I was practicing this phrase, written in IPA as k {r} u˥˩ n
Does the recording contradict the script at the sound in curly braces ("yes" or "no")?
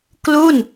yes